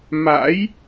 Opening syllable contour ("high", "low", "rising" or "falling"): rising